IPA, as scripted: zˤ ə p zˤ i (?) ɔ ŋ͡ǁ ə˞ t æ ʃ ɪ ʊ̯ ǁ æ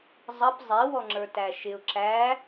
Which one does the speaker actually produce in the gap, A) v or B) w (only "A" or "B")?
B